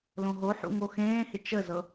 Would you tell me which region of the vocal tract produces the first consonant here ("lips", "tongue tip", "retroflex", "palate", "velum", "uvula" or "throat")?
tongue tip